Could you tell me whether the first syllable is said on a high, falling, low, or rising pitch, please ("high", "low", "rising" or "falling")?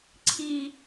low